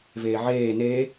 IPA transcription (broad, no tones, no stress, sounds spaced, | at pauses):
v eː ʕ eː n e